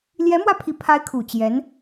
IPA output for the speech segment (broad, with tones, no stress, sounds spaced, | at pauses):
l j ɛ˧˥ m w ä˧ pʰ i˨˩ pʰ a˧˥ ɪ̯ kʰ u˨˩ t͡ɕ j ɛ˧˥ n